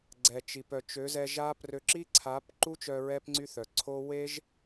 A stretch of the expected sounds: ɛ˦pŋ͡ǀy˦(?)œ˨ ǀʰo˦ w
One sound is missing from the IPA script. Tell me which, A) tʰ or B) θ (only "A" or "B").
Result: B